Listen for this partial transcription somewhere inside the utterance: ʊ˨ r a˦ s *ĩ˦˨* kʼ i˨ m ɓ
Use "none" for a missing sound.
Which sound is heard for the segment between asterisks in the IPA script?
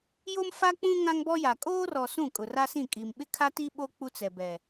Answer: ĩ˦˨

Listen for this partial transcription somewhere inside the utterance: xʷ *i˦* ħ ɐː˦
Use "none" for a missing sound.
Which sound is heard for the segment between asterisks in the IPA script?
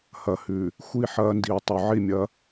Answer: i˦˨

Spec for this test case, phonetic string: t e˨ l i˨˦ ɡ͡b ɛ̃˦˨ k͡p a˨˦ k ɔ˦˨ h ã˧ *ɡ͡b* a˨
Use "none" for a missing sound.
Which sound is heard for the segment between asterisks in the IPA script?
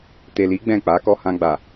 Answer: ɡ͡b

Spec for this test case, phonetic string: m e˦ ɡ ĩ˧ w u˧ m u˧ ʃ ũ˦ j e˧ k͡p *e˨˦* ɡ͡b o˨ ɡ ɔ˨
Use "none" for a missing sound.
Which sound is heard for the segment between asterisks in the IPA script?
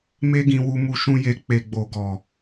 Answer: e˨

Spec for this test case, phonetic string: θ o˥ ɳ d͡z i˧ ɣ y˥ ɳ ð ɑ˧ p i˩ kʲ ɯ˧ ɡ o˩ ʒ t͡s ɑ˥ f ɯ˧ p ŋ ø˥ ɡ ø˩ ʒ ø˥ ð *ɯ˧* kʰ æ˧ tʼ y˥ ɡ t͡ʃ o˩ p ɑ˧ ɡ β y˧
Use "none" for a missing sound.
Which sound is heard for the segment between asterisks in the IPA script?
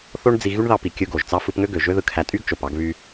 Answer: ɯ˧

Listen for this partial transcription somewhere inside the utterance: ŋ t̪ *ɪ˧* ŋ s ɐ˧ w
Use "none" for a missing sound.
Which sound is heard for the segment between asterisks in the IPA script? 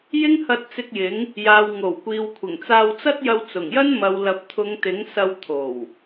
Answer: ɪ˨˥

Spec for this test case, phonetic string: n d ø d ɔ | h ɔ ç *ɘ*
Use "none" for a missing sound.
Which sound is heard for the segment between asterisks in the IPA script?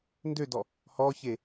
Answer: e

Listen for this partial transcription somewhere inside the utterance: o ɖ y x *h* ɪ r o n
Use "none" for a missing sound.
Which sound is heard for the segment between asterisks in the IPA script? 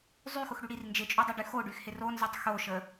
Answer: h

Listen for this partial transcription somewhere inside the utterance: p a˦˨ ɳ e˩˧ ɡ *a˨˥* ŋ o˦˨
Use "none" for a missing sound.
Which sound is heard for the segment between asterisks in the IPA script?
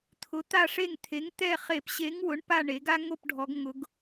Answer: a˦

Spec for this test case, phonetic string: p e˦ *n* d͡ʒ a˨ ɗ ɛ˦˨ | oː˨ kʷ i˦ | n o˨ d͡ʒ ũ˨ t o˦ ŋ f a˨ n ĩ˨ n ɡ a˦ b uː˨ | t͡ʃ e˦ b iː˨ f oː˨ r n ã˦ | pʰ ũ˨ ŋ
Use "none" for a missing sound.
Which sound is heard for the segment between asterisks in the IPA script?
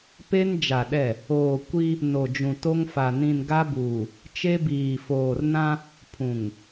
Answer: n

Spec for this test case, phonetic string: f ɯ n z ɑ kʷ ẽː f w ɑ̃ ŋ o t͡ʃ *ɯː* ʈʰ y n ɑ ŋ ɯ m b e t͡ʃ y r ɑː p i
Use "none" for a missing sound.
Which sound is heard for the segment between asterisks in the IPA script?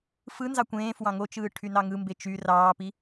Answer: ɯː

